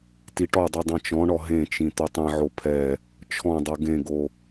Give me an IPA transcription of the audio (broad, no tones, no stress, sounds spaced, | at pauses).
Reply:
t i ʈ ɔ dˤ i dˤ ɛ̃ t͡ʃ ɔ̃ ɳ ɔ ɦ ẽ t͡ʃ ĩ t̪ o tˤ ĩ ʕ o pʰ ɛ | t͡ʃʰ ɔ̃ dˤ o ɡ ẽ ɡ o